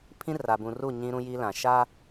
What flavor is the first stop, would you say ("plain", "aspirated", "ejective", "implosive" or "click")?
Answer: aspirated